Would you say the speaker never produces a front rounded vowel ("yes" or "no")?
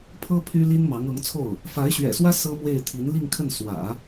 no